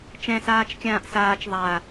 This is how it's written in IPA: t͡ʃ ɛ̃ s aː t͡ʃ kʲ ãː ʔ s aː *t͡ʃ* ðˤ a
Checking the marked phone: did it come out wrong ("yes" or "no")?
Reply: no